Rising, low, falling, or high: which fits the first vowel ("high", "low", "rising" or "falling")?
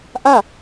falling